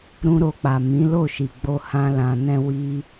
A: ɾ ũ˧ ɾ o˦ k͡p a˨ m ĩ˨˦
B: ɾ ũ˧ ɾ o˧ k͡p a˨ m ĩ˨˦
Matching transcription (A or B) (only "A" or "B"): B